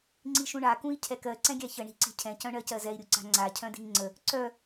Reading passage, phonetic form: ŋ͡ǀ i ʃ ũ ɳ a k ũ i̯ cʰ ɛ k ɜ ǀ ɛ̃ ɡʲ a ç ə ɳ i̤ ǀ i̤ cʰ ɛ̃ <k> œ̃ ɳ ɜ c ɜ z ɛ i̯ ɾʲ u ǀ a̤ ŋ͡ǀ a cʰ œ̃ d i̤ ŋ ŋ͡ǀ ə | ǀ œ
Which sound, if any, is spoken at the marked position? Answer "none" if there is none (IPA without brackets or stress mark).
c